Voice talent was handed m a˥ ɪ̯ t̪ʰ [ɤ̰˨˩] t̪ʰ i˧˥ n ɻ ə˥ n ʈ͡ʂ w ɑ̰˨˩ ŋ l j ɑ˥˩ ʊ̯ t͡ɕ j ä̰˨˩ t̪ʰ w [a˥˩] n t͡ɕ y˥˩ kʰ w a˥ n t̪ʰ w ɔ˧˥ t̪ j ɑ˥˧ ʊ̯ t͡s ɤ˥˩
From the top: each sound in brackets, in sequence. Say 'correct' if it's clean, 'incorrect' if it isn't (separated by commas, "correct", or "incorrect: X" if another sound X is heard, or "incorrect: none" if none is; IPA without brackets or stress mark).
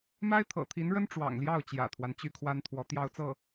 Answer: correct, incorrect: a˦